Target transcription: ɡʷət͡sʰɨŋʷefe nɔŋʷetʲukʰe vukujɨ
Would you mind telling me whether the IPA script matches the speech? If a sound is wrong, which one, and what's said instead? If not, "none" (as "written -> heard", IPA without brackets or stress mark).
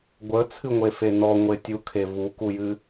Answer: none